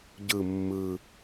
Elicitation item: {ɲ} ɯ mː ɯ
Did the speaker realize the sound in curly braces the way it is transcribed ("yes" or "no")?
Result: no